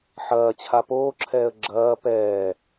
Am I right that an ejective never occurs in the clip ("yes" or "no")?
yes